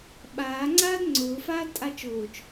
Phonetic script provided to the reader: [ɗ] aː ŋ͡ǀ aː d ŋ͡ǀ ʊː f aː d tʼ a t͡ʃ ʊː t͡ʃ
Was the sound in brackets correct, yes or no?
no